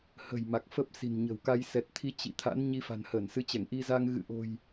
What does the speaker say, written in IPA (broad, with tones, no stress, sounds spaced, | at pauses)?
h ə̤˨˩ j m a˨˩ k̚ f ə˦˥ p̚ s i̤˨˩ n ɲ ə̤˨˩ w k a˧ j s ɛ˨˩ t̚ t̪ʰ i˨˦ t͡ɕ ḭ˧˨ t̪ʰ a̰˧˥ n ɲ i˧ f a̤˨˩ n h əː˧˩ n s ɨ˨˦ t͡ɕ ɛ˧˩ ŋ ʔ i˧ z a˧ ŋ ɣ ɨ̰˧˨ ʔ o̤˨˩ j